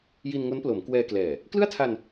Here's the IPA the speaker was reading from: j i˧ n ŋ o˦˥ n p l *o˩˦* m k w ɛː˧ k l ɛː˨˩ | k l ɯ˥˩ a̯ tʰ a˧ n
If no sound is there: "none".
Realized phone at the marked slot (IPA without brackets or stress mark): o˩˦